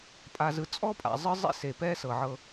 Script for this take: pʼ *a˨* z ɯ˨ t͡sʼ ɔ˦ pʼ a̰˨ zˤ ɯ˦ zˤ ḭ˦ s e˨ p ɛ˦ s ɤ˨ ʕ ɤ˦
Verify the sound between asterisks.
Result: correct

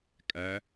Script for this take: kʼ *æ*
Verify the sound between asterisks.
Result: correct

